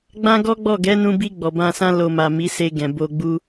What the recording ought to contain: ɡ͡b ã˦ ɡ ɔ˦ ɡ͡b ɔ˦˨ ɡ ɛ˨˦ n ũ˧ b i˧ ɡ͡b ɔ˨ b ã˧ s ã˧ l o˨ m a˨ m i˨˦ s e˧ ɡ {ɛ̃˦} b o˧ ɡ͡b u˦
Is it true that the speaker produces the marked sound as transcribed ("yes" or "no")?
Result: no